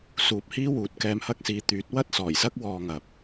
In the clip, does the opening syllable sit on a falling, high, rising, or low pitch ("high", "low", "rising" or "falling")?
low